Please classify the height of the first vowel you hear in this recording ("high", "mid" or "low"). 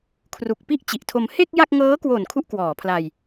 high